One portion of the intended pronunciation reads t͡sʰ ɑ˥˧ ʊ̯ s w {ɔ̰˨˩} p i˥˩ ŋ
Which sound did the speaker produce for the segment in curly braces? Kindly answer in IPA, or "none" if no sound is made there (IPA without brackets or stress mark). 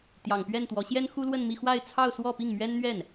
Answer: ɔ˥˧